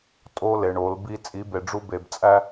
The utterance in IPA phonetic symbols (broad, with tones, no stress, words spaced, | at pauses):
tʼo˦ le˨ɳo˨˦lbi˦ t͡sʼi˨˦be˨ɖ͡ʐu˦ be˨bt͡sʼæ˦